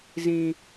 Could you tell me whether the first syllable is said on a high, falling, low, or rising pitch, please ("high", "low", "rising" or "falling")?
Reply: high